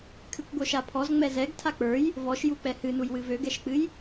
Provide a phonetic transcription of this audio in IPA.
kʰɨkʷɡʷœʃapʰɔz ŋ͡mɛzɛɡ tʰak͡pə˞j | vɔʃjuk͡pɛ hɨnuj wɨvøɡɛʃk͡pɨj

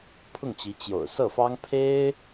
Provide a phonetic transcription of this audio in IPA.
pʰʊ˥˩ŋt͡ɕi˧˥ t͡ɕjo̰˨˩ʊ̯sɤ˥˩fɑ˥ŋ pʰe˥ɪ̯

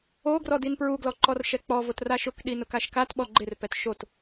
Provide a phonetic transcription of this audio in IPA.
oɡrɔ dinpɹuɡlɔ ǃɔrʃɛk͡pɔvot raʃʊkɗi nʊkaʃkatɓɔ ɡ͡ǃɪrpɛt ʃot

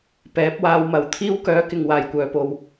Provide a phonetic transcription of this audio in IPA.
pɛː˨˥p̚waː˧w mɐ˨˧w t̪ʰiː˥w kœː˨˥kɪ˨ŋ waː˨˩jkʷœː˨po˨w

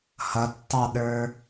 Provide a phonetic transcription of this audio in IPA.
hʌtːɑɗə˞

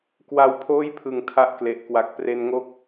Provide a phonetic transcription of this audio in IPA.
kwa˦˥wpʰoː˥˩jpʰɯ˨˩ŋ tʰa˥˩ʔkle˨˩ʔkwa˨˩k̚ pre˧nŋo˦˥k̚

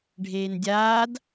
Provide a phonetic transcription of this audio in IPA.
ɖʱeːndʲaːd

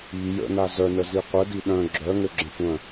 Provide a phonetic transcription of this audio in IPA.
i jə̰na zœnəzi qʷədi ɗœ̃ ɡ͡ǁœŋøɡ͡ǁə̃ tʷœ̃

